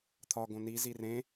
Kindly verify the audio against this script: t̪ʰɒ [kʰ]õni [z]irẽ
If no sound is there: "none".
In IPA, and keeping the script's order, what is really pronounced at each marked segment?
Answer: ɡ, z

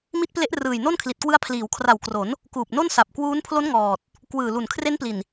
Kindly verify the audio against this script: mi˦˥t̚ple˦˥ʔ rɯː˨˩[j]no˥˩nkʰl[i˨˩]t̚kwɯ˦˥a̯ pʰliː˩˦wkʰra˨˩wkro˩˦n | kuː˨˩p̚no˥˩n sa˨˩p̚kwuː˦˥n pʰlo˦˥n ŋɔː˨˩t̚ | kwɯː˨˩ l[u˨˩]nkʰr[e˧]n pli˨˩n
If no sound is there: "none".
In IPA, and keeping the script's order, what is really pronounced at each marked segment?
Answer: j, i˨˩, u˨˩, e˦˥

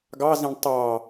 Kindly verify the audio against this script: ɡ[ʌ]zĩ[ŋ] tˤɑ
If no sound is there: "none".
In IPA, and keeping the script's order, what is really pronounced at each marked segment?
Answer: ɑ, ɳ

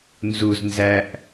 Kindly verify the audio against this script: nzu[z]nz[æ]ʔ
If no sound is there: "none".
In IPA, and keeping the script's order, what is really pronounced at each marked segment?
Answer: z, æ

